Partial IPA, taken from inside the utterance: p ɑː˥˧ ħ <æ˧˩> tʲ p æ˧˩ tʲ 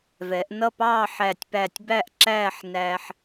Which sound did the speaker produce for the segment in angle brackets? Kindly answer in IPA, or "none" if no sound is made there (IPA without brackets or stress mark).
æ˧˩